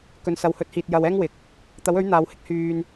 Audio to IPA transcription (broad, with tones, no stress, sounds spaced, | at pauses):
k ɵ˨ n s ɐ˨ w h ɵ˨˥ t̚ h iː˨ t̚ j ɐ˨ w ɛː˥ ŋ w ɪ˨ k̚ | t̪ ɐ˨˥ w ɵ˨˥ ɥ n̪ aː˨˧ w h ɪ˥ k̚ h yː˨ n